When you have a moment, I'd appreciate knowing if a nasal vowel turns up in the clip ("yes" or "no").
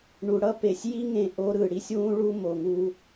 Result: yes